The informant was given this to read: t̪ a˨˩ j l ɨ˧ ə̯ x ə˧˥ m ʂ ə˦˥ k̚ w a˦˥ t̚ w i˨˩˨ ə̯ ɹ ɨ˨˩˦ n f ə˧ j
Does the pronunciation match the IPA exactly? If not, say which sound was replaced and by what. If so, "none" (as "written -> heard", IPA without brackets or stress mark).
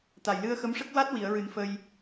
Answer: none